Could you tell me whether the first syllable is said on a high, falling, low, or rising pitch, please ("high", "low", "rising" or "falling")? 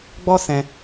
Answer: high